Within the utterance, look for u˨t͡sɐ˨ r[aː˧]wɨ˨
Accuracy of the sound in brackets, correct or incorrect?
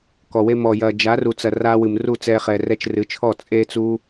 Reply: correct